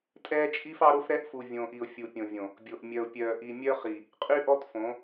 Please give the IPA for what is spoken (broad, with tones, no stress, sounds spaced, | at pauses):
tʼ ɛː˦ t͡ʃʼ i˦ f ɑ˦ ɾ o˦ f ɾ ɛ˦ ʔ f u˨ vʲ õː˨ ʔ i˨ ʊ̯ fʲ u˨ pʲ õ˨ vʲ õ˨ | bʲ o˨ ʔ mʲ œ˨ ʊ̯ pʲ œː˨ ʔ i˨ mʲ œ˦ χ i˨ | qʼ y˦ ʔ ɔ˦ t f õ˨˦